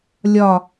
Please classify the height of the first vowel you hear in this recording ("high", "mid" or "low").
low